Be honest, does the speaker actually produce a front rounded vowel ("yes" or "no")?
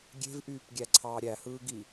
yes